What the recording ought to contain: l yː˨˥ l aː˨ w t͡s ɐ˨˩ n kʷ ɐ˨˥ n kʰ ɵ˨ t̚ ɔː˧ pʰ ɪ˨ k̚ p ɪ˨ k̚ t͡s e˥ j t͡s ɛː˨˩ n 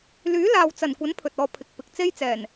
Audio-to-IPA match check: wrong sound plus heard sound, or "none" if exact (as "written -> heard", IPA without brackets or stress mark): kʰ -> pʰ